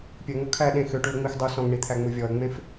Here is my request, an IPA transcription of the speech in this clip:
pʲ ɵ ŋ o kʰ æ ɗ ẽ x ø ʈ u ə̯ ŋ͡m i x dˤ u s ɔ̃ ŋ ɳ i t̪ʰ æ ŋ͡m u vʲ ɔ ə̯ ŋ͡m ẽ f

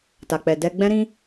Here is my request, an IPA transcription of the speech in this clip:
t a˨ k͡p ɛ˨ d ɛ˧ ɡ͡b ɛ̃˦ ɾ ĩ˦

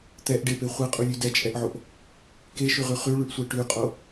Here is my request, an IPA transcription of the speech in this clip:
t̪ ɛ ʔ ɖ e p e χʷ e qʼ u lʲ ʉ d ɛ t͡ʃʼ ɛ ʔ ʕ o ʔ | k e ʃ ʉ ʁ ʉ χ ʉ ɭ ʉ ʔ sʷ ɛ ʈ ʉ qʼ o

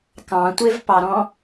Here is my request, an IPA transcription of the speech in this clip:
k ɑ̃ tʷ e v p ɑ ɾ ɔ̃

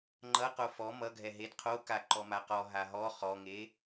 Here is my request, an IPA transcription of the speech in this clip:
ŋ͡ǃ ʌ q o f ɔ m ʌ ɡʱ ɛ ɦ e d qʰ o k a ǃ ɔ m a q ɔ ɦ a ɦ ɔ χ ɔ ŋ e

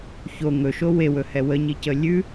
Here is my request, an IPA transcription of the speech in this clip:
ç o ŋ ɵ ʃ o w e w ɵ h ɛ w ə ɲ i c ə lʲ ʉ

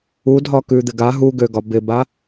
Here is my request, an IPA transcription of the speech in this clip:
u dʱ ɒ k ʉ d̪ ɪ ɡ a ɦ u ɡ ø ɡ ɒ b ɪ b a

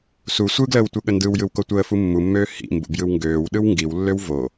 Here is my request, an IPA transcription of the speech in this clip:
s u sʷ ɯ ɡ l əː w tʷ ɯ ɠ ə n d ɯ w j ɯ w k o tʷ əː f u mː u mː øː h ḭ m b ṵ b j ɯ w ŋ ɡ øː w ɗ ɯ w ŋ ɡ i w lː ø w v o

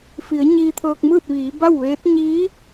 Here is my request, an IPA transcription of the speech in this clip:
f i˩˧ ə̯ ɲ iː˧ t̪ʰ ɤː˧ k̚ m ɯː˥˨ t̚ ʋ iː˩˧ b a˥˨ w ʋ eː˧˥ t̚ ɲ iː˧˥

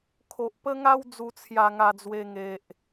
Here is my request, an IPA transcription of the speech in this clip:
kʰ o˨ ʔ p ə˦ ŋ a˦ w d͡z u˧ t͡sʰ j a˧ ŋ a˧ d͡z w e˧ ŋ e˨ ʔ

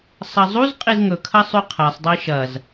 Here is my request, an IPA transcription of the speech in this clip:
sˤ ɐ zˤ u z qʼ i z ŋ ɵ kʰ ɐ sˤ ʉ qʰ a sˤ dˤ i ʃ ɐ z

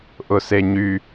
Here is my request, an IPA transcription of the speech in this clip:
ʔ ʊ s e ɲ y

